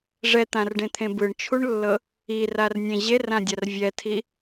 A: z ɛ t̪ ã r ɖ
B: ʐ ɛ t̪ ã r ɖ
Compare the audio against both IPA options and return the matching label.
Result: B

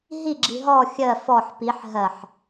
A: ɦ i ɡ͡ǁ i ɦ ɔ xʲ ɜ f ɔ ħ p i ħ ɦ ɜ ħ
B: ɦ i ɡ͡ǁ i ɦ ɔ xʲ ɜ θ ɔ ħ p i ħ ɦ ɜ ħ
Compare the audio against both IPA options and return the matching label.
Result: A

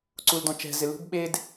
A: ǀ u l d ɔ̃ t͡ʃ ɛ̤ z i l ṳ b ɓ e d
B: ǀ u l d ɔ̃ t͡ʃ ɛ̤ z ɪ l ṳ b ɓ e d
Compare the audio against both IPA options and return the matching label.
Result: B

